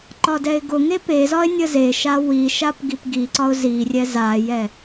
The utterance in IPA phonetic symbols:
ǃ ɒ d ɛ ɪ̯ ɡ ʊ ŋ e p e z ɒ ɪ̯ nʲ ə z e ʃ a w i ʃ a p ɡ i p ɡ i ǀ ɒ ʊ̯ z i rʲ ɛ z a j ɛ

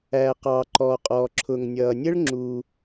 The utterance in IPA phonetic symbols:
æː˩ q ɑː˩ ǃ ɔː˩ qʼ ɔː˩ ǁʰ ʊ˩ ŋ nʲ ʌː˩ nʲ ə˥ ɭ ŋ͡ǁ u˩

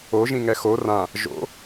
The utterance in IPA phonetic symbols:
o ʒ ĩ ŋ ɛ x o r ã | ʒ o̰

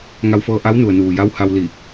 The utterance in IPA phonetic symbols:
ŋ a˧ w f ɤː˧ ʔ a˧˥ w n u˩ ə̯ n uː˩ j a˧˥ w h a˧ w l i˧˩

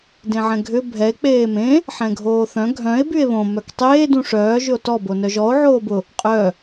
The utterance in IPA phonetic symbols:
d ẽ ʕ ɛ̃ ɡʱ ʏ bʱ ɛ e̯ k͡p eː m ẽ | ħ ɛ̃ ɡʱ oː θ œ̃ ɡʱ œ̃ e̯ b y e̯ β õ m œ k tˤ eː d ũ ʂ œː ʒ ʏ o̯ t ɔ b o n œ ʒ ɔ o̯ ʕ oː b ʊ | qʼ œ

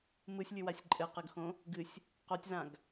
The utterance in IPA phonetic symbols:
m ɯ sʲ lʲ ɨ w a sʲ ǃʼ ɘ q ə ɡ x õ | ɡ ɨ sʲ | q o tʲ z ã ɡ

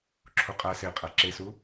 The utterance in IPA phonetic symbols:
ǁʰ u qʼ æ s e qʼ æ ǁ e s u

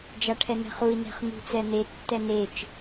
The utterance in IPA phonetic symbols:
d͡ʒ a ʈʰ ɛ n̪ ɛ̤ χ u i̯ n ɛ̤ χ n̪ ṳ t͡s ɛ n̪ e tː ɛ n e t͡ʃ

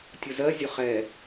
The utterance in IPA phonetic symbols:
tʲ ʊ z ɜ zʲ ʊ χ ɛ

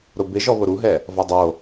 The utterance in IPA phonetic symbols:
ɾ ʊ b ɪ ʒ ɔ β ʊ ɾ u ɦ ɛ | v ɔ dˤ o

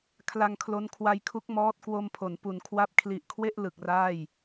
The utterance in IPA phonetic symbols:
kʰ l a˧ ŋ kʰ l o˦˥ n kʰ w a˧ j kʰ u˦˥ k̚ m ɔː˦˥ t̚ k w o˧ m pʰ o˩˦ n p u˩˦ n kʰ w a˦˥ p̚ kʰ l i˨˩ ʔ kʰ w e˥˩ ʔ l ɯ˨˩ k̚ r aː˥˩ j

